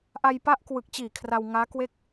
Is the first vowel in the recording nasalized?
no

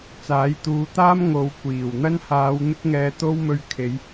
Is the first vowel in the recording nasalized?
no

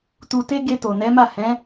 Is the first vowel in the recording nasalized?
no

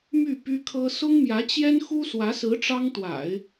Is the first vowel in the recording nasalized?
no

